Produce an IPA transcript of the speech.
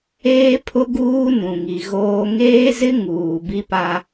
eː˦ pʰ ʊ˦ ɡ uː˦ n ũ˨ ŋ i˨ ɣ oː˦ ŋ eː˦ z ɪ˦ ŋ uː˨ b i˦ p a˦

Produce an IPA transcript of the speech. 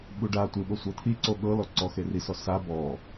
ɓ u ɖ a tʷ ɯ ɓ o sʷ ɤ t̪ʰ i ǀ o ɠ ɤ l ɔ ǀ ɔ x e r i s ɔ s a b ɔ

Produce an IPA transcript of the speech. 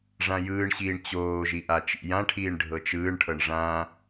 ʐ ã j ɯː ɳ ɕ iː ɳ t͡ɕ oː ʒ i ʔ a t͡ʃ ḭ j ã ʈʰ iː ɳ ɖʱ ɤ t͡ʃ ɯː ɳ ʈʰ ɤ ɳ ʐ ã

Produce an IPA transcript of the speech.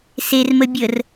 s e r m ə bʲ ə r

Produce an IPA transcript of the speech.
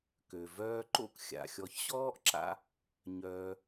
k ø˩ v œː˦ ǃ o̰˦ k xʲ a̰˩ xʲ ɔ˨ ç ɕ ɔː˥ ʔ ǁ a̰˥ | ɲ œː˨

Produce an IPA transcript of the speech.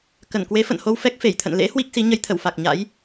k ə˧˩ n k w e˨˦ f ə̰˧˨ n h o˧ w f ɛ˦˥ k̚ f e˧˩ j t̪ʰ ə̰˧˨ n l ḛ˧˥ h w i˦˥ k̚ s i˨˦ ɲ ə˨˦ j t̪ʰ ə˧˩ w f a˨˩ k̚ ɲ a̰˧˥ j

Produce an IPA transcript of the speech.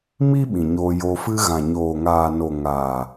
m iː˦ ɓ ĩ˨ ɲ oː˧ j o˧ f ɨ˧ ɣ ã˨ ɲ oː˨ ŋ aː˨ n o˨ ŋ aː˨

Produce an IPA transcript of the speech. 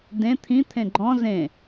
d ẽ t̪ʰ ĩ t̪ʰ ẽ ɡ͡ǃ ɔ̃ z ẽ

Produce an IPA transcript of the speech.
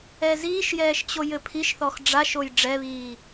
ɛ z iː ʃ j ɛː ʃ t͡ɕ o j ɘ pʰ i ʃ θ ɔ x ɖ͡ʐ a ʃ o j ɖ͡ʐ ɛ β iː

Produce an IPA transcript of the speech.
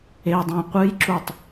e dˤ ã qʷ ɨ j ǁ u tˤ

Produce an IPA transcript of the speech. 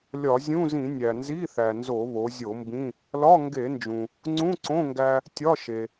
lʲ ɒ˧˩˧ zʲ ũ˧˥˧ z ĩ˧˩˧ nʲ æ˩ n z i˧˥˧ θ æ˩ n z o˧˩˧ β o˩˧ zʲ o˧˩˧ m b ĩ˧˥˧ | l ɒ˧˥˧ ŋ ɡ e˧˩˧ n d͡ʒ ũ˩ | ŋ͡ǀ ũ˧˥˧ ǀ õ˧˥˧ ŋ ɡ æ˧ | tʲ ɒ˧˥˧ ʃ e˩

